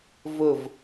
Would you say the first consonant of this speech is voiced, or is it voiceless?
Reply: voiced